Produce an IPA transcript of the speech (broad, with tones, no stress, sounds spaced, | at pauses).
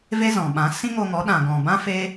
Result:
v e˦ z ɔ̃˨ ɓ ã˨˦ s ĩ˦ ŋ o˧ ŋ ɔ˨˦ ɗ ã˨ ɡ ɔ̃˨ b ã˦ f e˦